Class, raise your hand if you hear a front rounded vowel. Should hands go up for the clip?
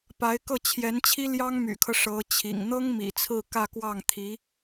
yes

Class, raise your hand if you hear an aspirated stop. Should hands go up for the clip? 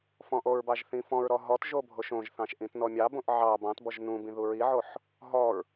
no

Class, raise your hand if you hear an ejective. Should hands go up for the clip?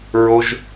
no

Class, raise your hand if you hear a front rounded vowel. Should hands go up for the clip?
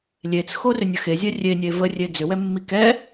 yes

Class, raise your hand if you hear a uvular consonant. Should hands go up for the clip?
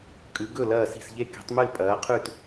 yes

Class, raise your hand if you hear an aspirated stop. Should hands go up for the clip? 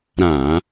no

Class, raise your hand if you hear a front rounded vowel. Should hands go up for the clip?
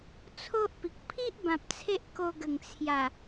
no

